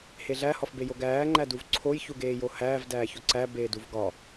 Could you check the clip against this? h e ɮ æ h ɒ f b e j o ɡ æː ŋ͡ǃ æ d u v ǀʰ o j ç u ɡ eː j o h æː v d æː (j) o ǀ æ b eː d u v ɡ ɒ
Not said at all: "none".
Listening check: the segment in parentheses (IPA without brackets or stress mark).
ç